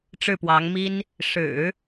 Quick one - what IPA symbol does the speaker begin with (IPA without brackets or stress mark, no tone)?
ʈ͡ʂ